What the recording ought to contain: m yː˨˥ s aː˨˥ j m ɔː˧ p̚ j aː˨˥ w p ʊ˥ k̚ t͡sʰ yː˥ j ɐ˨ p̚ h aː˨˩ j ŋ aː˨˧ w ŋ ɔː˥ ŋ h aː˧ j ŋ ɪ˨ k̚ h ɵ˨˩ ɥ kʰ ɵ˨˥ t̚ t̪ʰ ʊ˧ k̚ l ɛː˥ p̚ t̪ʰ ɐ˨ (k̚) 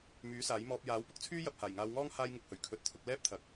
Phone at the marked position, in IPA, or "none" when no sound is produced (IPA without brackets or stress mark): k̚